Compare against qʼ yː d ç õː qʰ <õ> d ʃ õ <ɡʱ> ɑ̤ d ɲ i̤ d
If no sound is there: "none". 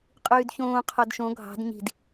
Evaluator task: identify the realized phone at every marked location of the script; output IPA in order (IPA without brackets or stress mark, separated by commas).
o, ɡʱ